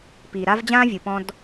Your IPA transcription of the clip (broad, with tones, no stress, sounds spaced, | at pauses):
p iː˨ ɾ a˦ v d͡ʑ ãː˦ vʲ ɯ˨ p ɔ̃˦ d